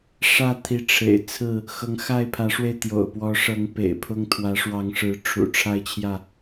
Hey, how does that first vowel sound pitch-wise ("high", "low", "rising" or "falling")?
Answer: falling